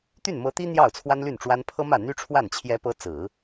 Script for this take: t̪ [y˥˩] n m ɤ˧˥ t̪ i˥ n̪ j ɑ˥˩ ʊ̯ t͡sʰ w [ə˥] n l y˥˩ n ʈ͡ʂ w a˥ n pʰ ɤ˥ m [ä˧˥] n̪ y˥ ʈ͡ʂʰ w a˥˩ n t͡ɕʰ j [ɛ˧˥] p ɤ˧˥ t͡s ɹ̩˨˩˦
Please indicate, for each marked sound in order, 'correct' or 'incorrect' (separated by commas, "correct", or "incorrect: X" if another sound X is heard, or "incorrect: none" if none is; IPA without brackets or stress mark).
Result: correct, incorrect: a˥, incorrect: ä˥˩, correct